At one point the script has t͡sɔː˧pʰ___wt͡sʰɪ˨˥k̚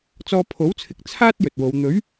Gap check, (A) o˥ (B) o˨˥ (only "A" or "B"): B